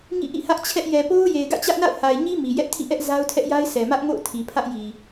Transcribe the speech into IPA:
ŋḭ˦˨ʔḭ˦˨hä˦ʔt͡ɕʰɛ˦ʔ jɛ˨po˦ʊ̯ je˨ɪ̯ɡä̰˦˨t͡ɕä˦ʔna̰˦˨ʊ̯ ha˨ɪ̯ɲi˦ mi˨ jɛ˦ʔtʰḭ˦˨ʔɛ˦ʔ za˦ʊ̯tʰɛ˦ʔja˦ɪ̯ sɛ˨mä˦ʔŋo̰˦˨ʊ̯ tʰi˨pʰä˦ʔji˨

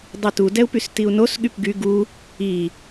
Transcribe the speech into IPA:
dˤitu dɛu̯pystiu̯nos ɠypɡy ɡu | i

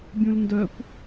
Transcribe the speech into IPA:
bʲũlndœkʷ

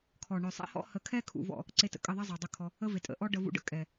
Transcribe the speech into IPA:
kʰɔ˨ ɳœ˨ sˤɛ̰˦hɔ̰˦ hə˨kʰɛ˧kʰṵ˨ vɔ̰˦˨ | ǀe˧tə̰˨kʼə˦˨ ðˤe˦zˤœ˨dˤə˧ kʰɔ˧ | ə˦ve˨tʼə̰˨ ʔɔ˦ɖə˧ vṵ˧ɖə̰˦ kʼɛ˨

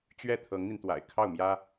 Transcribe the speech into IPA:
t͡ɕɥɛ˥˩ t̪ʰɤ˧˥ŋn̪i˧nt̪wa̰˨˩ɪ̯ kʰɑ˥˩ʊ̯mjä˥

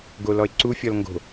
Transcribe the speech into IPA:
ɡolɔɪ̯ǀufʲɔl ŋɡo̤

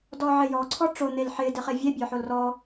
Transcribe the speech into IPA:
dɔʕɪjɔ ǀʰɔʈ͡ʂo n̪elħɪ dɪχevʲe bʲɔħolrɔ

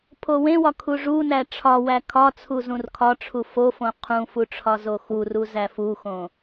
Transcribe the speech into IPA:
pʰowẽwɒ kʰuʐunæ ʈ͡ʂʰɒwæ kʰɒt͡sʰu zũrkʰɒʈ͡ʂʰu fofõ qʰũfu ʈ͡ʂʰɒzoxuru zæfuxõ

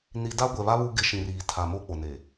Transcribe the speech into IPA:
ni˨ da˦ɡʷɛ˨βa˦ βu˦ɡɪ˦˨ʃĩ˨riː˨ tʰa˨mo˦ k͡po˨ne˨

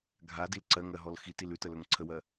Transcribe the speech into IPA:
ɡʱadil ǀɜŋɜɦɔl xitil ʉtəlɵŋ ǀʰəwɜ

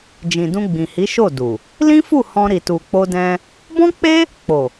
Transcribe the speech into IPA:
d͡ʒĩ˨dũ˧ɡ͡bĩ˨hi˨˦ ʃo˦˨du˨ | lĩ˦fu˦˨ hɔ̃˧ ɾi˨tu˨k͡po˧dɛ̃˧ | bɔ̃˦k͡pe˦ | k͡po˨

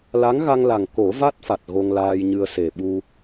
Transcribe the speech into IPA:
la˧˥ŋɣa˧ŋla˨˩ŋ ko˨˩˦va˦˥t̚fa˨˩t̚ ɣo˧ŋlaː˧jɲɨ˧ə̯ se˨˩ɓu˧

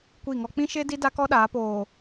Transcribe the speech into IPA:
kʷi˦˨ŋɔ˦ k͡pĩ˦ʃe˦di˦ da˦kɔ˦ɗaː˨˦poː˨

